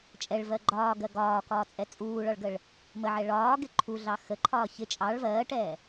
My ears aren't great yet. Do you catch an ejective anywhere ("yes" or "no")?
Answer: yes